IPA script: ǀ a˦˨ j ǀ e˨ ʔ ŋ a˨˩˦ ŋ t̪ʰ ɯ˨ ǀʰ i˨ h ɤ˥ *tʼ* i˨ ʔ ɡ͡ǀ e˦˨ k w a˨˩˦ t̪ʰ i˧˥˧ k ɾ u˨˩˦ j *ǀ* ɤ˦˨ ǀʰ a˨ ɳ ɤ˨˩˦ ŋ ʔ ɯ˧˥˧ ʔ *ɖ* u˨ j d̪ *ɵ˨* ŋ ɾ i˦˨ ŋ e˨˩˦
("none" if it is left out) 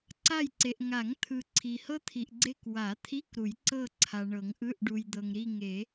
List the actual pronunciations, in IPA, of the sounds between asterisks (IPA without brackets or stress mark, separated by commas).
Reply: t̪ʰ, ǀ, ɖ, ɤ˨